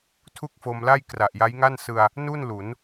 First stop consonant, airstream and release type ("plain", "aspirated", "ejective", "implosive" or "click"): aspirated